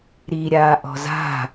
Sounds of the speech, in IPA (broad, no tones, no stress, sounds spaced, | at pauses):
ɾ i ɾʲ aː ʔ ɔ̤ z a̤